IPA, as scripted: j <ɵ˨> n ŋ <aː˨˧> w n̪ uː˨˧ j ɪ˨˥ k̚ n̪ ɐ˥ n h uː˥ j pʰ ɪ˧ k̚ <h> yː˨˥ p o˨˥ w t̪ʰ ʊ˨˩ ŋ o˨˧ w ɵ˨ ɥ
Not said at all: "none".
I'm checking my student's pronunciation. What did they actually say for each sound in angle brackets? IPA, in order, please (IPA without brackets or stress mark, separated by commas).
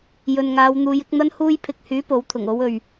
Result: ɵ˨, aː˨˧, h